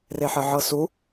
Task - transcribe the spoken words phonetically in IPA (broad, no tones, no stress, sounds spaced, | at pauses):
r e ħ ə ʕ ɤ s u